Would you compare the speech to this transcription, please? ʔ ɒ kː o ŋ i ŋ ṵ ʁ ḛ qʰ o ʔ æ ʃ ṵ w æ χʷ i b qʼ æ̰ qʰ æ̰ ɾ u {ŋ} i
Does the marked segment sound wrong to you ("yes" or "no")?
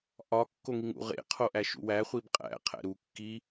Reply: yes